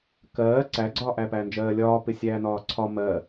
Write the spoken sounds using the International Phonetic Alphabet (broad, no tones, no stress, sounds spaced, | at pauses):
k ɜː ǀ æ ɡ͡ǀ ɒː ʔ æ p æ n d͡ʒ ɜː lʲ ɒː p ɪ sʲ æː n ɒː ǀʰ ɒ m ɜ